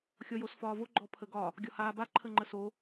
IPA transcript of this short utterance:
xʲɔjosfɒːvo ɡ͡ǃɔpʰəɡɒ | ɡʲɒhaːba ǃʰəŋ͡ǃəso

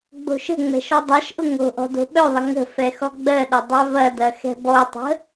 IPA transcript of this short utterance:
ɡ͡bo̤ʃə̤ŋ͡mɛ̤ ʃɔdˤaʃʔʊ ŋo̤ʔɔ̤ do̤ɓœðˤə ŋə̤ fɛxɔɡ͡bɜɗɐ dˤœvɐdɐ xɛ̤bɔtˤə̤

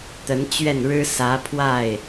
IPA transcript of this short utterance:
t̪ə˧˥nt͡ɕɥɛ˥˩nɻɻ̩˥ sä˧˥ pʰwa˥˩ɪ̯

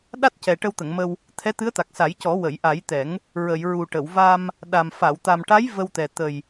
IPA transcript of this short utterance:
ɗa˦˥t̚cɛ˨˩ ʈə˧wt̪ə˨˩˨ŋmə˧w | t̪ʰɛ˧˥t̪ɨ˧˥ə̯t̪a˨˩k̚ sa˨˩˦jcɔ˨˩˦ wə˨˩˨jʔa˨˩˦jt̪ɛ˨˩˦ŋ | ɹə˨˩˨j ɹu˨˩ʈə˨˩˨wva˧m | ɗa˨˩m fa˨˩˨wt̪a˨˩mʈa˧˥j və˧wt̪ɛ˨˩ t̪ə˨˩j

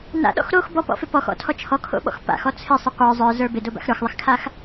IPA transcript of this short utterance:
na̰ɗɔ̰x ɾox bɔpɔ̰fɪ pɔxɔ̰tʰɔ t͡ʃʰɔkʰo̰ɓɔ̰x pa̰xɔ t͡sʰɪsˤɪ qʷə˞ zˤə˞zə˞ bɪdoba̰x ɾə˞xðˤɪxkʰax

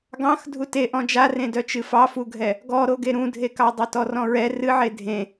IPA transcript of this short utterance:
ɡɑ̃x dʱute ʔɔ̃d͡ʒarẽdœ t͡ʃɨfɑfuɡʱɛ | ɡɔɾoɡe ɾũdʱekɑ dˤœtɔrɔ̃ɹɛ rɨʕe dʱẽ

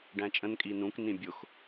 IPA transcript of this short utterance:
ɖæ̃t͡ʃʼə̃n kʼinũk nĩbʲʊx

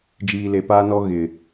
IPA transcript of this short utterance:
d͡ʒiː˨le˨paː˦nɔ˦ ɣɪ˨

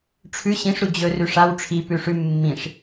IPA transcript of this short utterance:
ʈ͡ʂʰʉ ɕĩʂ ɾud͡ʑɵ rʉʂaw ʈ͡ʂʰi pʉʂʉ mːĩʂ

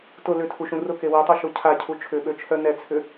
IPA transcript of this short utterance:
tʊ lʏtʰuʃũ rʊke wɛtˤoʃo cʰacʰu t͡ʃʰʏɓøt͡ʃʰœ nɛt͡sʰʏ

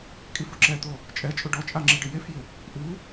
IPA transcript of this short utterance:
kʼifʊǁɛt̪o | t͡ʃʼɛt͡ʃʼʊ ɖɔt͡ʃʼa ŋ͡ǁiɖɪjefjɪ | ʔu

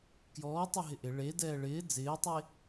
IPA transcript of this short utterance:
kjɔːtˤeɦɪ ʔɪ ɭedɛː ɭɪː d͡zɪːtˤe

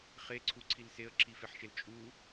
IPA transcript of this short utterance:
χeǀʰuǀʰil seə̯ǁʰifeħʃel t͡ʃʼu

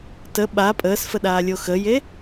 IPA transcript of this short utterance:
tə ɓa pʼəːsfəɗaːlʲo xəje

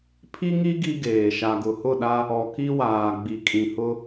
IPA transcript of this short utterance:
pʰi˦ŋi˦ ɡi˦ɡeː˨ ʃa˨ɡʊ˨hʊ˦˨ɗa˦ | ɔ˨ki˦waː˨ ɡ͡bi˨kʼĩ˨hʊ˦

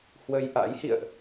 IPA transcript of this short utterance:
hwə˧jʔa̰˧˥jhḭ˧˨ə̯ʔ

